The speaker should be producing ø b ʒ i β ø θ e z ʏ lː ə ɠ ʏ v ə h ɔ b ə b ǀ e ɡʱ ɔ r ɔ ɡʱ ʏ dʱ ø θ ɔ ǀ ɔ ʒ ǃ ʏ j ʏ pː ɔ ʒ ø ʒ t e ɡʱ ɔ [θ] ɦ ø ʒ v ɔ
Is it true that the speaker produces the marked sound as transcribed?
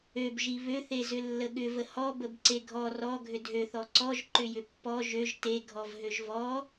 no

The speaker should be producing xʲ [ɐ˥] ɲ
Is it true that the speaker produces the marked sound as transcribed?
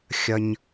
yes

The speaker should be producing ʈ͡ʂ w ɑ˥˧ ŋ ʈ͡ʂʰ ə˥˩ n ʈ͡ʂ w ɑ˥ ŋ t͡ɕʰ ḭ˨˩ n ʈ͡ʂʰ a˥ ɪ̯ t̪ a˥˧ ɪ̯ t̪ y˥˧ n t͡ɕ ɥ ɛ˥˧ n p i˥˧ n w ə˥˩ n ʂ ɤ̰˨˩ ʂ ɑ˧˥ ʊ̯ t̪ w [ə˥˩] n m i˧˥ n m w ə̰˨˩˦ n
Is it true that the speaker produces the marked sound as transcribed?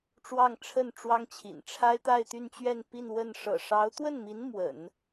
yes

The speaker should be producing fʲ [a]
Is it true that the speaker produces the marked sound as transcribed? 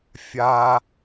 yes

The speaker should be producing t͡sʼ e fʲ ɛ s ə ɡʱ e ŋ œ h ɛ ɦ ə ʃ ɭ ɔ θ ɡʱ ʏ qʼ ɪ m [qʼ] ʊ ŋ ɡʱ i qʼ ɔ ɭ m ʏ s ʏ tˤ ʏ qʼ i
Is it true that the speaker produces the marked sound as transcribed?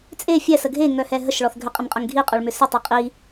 yes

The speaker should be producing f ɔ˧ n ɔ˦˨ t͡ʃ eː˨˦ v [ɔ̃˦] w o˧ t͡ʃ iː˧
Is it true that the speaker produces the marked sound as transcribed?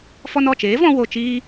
no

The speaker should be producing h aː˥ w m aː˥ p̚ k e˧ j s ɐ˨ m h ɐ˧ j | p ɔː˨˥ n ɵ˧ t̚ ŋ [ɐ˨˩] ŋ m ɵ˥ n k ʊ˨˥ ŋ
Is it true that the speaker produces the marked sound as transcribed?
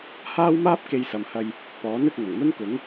yes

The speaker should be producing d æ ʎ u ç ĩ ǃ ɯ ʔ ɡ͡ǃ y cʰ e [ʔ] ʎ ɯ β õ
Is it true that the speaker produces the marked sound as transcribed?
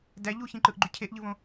yes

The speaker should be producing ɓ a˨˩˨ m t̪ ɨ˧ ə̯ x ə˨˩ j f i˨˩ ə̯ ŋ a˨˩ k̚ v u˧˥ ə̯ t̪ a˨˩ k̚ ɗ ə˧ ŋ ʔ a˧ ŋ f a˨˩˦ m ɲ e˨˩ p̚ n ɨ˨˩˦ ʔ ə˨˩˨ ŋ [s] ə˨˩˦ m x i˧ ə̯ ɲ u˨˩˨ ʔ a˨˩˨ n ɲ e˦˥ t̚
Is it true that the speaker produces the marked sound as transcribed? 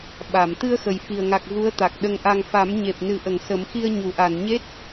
yes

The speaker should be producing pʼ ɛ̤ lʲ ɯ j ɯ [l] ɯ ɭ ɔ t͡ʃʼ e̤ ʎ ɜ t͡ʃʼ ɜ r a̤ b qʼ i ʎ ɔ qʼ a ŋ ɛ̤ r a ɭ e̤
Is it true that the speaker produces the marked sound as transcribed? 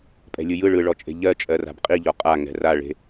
no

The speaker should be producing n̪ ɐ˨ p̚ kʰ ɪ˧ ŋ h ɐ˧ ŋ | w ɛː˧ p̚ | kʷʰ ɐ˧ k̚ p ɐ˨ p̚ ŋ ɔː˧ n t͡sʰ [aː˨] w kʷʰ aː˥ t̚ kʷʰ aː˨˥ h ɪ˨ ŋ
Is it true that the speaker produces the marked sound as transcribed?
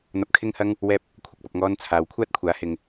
yes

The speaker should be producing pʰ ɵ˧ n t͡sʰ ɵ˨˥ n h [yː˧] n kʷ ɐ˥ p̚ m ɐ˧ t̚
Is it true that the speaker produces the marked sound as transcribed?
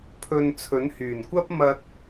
no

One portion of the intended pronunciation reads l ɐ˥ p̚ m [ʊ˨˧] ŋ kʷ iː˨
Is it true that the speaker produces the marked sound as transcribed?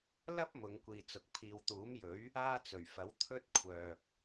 yes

